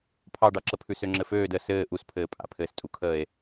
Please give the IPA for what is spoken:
pʰ ɑ ɖ ɑ ǁ ə pʰ ʉ s ø ŋ͡ǁ ɘ f øː d ə s ɘː ʔ u s pʰ ɘː pʼ a̰ pʰ ɘː s tʼ u kʰ əː e̯

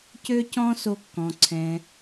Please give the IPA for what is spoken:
c ø˦ c ɔ̃˦ s o˦ kː ɔ̃˧ ǀʰ ɛ̃˧

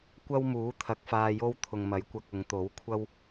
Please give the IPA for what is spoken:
kʷ ɐ˥ w m uː˨˥ t̪ʰ ɐ˨˥ k̚ f aː˧ j o˥ w t̪ʰ ʊ˨ ŋ m ɐ˨˥ j kʷ ɐ˧ k̚ ʊ˨˧ ŋ t̪ o˨˥ w kʷʰ ɐ˥ w

